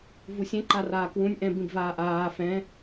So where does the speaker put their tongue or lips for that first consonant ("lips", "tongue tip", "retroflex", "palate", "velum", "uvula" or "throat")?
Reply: lips